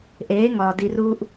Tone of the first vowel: rising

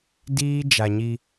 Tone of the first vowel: high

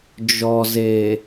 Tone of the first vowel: low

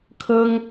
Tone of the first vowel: high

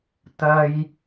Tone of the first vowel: high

